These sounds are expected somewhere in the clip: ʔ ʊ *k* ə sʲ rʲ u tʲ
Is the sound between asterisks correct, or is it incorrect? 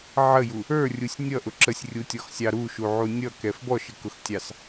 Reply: incorrect